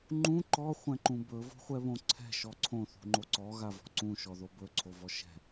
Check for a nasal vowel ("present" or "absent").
present